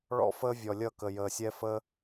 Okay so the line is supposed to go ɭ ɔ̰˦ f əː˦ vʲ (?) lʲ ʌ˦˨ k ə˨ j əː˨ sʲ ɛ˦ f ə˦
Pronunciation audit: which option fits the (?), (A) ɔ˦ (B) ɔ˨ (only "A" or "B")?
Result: B